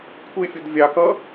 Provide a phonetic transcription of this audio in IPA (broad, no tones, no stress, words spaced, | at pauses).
kʷʰɪfʲʊd vʲɑkʌ